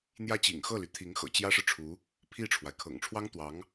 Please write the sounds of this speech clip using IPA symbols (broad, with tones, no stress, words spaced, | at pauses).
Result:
n̪jä˥˩t͡ɕḭ˨˩ŋxɤ˥˩ly˩ t̪ʰi˧˥ŋ xɤ̰˨˩t͡ɕjä˥ʂɻ̩˨ʈ͡ʂʰu˧˥ | pʰi˥˩ʈ͡ʂʰwa˩ɪ̯kʰɤ̰˨˩ŋ ʈ͡ʂʰwɑ˥ŋt̪wɑ˧˥ŋ